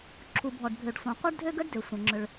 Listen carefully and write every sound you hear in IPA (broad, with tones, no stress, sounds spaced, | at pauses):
ǁʰ u˩ bʱ ɔ˩ ɖ bʱ ø˩ ɖ sʷ ɐ̃˩ qʷ œ˥ ɖ dʱ ø˥ ɡ ə˥ ɖ d ø˩ sʷ ɐ̃˩ ŋ͡ǁ ʏ˩ ɭ